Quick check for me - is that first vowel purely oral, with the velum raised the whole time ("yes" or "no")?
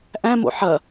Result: no